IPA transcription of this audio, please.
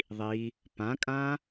ðˤi | pãkʼã

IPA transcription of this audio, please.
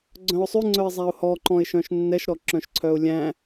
ɡ͡ǀœ̃ʊ̯sˤʉŋ͡ǀœɪ̯zˤæʊ̯ hɔǃɔ̃ɪ̯ʃœ̃ʃ nːɛʃɾɔǁœ̃ʃǀʰœʊ̯ lʲæ̃

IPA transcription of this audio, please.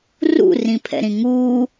rṵrĩpʰɛ̰ɾĩ ŋuː

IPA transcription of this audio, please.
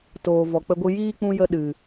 toː˨ vɔ˨k͡pə˧ɡʷɨ˧ jiː˦k͡pũ˧jə˧ ɗɨ˨

